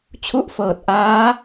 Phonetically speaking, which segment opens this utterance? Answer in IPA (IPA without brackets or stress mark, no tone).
t͡ɕʰ